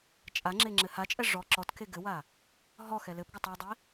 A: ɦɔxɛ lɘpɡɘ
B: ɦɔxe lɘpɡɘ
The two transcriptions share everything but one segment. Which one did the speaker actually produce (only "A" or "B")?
A